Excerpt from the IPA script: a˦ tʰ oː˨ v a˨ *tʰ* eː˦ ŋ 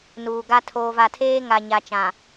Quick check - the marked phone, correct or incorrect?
correct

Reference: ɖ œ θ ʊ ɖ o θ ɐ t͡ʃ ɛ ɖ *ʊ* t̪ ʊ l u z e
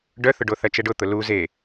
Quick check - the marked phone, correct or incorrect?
correct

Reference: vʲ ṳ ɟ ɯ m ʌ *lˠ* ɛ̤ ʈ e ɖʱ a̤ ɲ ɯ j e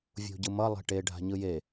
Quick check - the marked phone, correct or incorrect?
correct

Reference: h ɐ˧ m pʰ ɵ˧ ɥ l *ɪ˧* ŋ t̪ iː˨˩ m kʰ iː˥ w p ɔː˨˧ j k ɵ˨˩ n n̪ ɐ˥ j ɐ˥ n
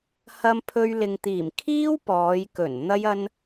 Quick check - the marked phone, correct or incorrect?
incorrect: ɪ˨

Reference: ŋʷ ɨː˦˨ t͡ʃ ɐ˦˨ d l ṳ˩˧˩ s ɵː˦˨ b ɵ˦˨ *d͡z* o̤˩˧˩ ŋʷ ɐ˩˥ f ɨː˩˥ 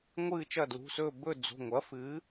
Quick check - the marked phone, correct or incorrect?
correct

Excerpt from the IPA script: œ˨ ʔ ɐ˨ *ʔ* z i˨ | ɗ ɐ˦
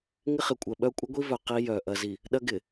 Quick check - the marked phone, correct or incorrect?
incorrect: none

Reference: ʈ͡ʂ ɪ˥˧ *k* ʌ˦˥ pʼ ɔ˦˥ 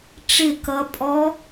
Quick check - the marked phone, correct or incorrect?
correct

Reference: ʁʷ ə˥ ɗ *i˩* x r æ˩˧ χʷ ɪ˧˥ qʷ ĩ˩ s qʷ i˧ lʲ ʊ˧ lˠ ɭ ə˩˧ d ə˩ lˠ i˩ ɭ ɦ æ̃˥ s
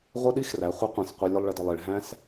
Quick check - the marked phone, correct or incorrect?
incorrect: i˥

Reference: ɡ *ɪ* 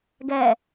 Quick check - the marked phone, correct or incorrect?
incorrect: ɛ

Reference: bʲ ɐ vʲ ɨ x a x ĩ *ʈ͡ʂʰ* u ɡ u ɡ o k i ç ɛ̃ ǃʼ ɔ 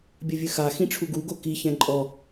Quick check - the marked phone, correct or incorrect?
correct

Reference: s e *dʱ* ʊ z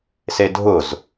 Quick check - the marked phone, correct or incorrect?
correct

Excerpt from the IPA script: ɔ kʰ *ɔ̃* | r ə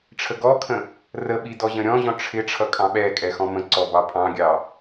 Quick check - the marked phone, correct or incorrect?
incorrect: ə̃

